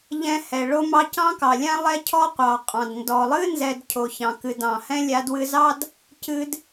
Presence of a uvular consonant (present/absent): present